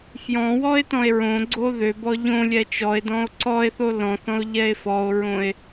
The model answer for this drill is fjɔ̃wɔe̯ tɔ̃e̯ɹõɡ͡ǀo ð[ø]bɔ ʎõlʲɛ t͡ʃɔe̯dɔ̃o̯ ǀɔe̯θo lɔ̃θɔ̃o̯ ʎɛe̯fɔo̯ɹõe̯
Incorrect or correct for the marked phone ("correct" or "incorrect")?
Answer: correct